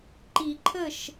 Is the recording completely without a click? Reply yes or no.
no